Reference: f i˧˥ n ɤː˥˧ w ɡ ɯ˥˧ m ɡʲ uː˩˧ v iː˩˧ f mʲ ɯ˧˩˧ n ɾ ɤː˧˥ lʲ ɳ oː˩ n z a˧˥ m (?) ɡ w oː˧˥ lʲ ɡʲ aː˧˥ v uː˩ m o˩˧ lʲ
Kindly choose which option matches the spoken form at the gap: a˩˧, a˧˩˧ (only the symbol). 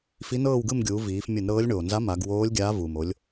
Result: a˩˧